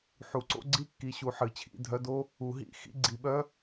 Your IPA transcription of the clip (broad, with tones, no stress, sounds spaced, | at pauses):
ħ u˨˩˦ ǀ o̰˧˥˧ ɡ͡ǀ i˥˨ kː i˨˦ ɕ u˨˦ ħ ɨ˨˩˦ t͡ɕʰ ḭ˧˥˧ dʱ œ˧˥˧ d o˥ | u˨˩˦ ɦ ḭ˧˥˧ x ḭ˥˨ ɡ͡ǀ i˨˩˦ ɓ œ˧˥˧